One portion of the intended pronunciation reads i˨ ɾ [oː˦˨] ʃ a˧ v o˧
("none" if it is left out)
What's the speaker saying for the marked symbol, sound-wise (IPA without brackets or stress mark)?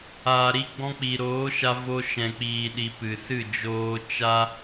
oː˨˦